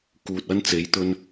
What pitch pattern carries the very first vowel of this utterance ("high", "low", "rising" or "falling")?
low